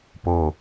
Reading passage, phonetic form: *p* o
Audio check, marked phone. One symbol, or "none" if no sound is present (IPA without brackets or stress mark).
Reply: p